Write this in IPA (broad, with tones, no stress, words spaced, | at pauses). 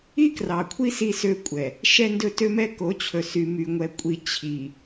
i˦krɑ˨kʷʰi˦ si˦sø˦kʷʼɛ˨ | ʃɛ˦ndɵ˦tø˦mɛ˦ ko˨˦t͡ɕʰɵ˨ sy˨my˨ŋʷɛ˨kʷʼi˨ t͡ɕʰi˨